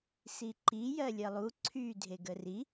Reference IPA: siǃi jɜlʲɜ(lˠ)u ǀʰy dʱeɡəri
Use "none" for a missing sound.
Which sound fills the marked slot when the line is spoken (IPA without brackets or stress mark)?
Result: lˠ